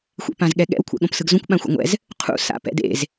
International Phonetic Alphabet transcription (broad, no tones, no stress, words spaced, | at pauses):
xʷḛpãzɠɛɠɛ̰w kʷʰɛ̰ɠõpsɯɡzõkʷ ɓãxʷa̰ŋʷɛ̰z | qʰṵ sa̰pɛ̰dḛz